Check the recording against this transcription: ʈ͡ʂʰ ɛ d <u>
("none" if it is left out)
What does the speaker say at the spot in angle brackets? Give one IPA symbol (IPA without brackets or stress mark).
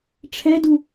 u